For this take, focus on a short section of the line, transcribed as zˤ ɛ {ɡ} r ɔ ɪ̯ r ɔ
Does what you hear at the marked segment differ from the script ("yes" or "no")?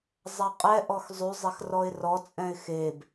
yes